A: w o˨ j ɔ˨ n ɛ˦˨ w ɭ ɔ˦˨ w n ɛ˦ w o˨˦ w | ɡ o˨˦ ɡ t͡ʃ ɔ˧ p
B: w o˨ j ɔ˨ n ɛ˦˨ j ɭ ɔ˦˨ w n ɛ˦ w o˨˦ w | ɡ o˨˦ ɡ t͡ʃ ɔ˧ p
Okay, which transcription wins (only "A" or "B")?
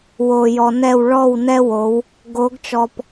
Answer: A